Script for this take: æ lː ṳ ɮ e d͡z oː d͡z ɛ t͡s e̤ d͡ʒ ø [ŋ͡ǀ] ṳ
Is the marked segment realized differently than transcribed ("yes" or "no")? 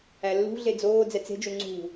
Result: no